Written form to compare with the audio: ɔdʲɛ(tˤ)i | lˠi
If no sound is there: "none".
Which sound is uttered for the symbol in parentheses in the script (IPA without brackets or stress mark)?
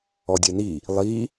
n